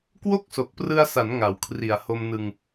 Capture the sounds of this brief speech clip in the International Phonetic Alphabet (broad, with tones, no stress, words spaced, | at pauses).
kwo˥˩k̚so˨˩k̚prɯ˧a̯sa˩˦n ŋa˩˦wkʰri˨˩a̯ho˧mnɯ˧ŋ